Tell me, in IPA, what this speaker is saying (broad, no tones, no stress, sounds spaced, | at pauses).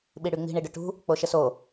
ɓ i ɽ y ŋ͡m i̤ ɳ i ɖ ʏ ʈ ṳ | k͡p o ʃ ə s o